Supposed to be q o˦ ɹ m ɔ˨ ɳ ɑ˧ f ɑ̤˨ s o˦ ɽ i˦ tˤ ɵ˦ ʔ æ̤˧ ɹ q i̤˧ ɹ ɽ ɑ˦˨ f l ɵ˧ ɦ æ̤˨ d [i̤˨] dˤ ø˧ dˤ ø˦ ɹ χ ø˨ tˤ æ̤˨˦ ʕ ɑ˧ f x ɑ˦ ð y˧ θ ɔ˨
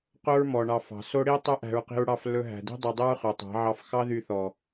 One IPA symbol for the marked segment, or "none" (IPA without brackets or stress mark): i̤˦